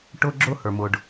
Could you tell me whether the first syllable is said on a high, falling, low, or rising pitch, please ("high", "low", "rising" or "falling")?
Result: high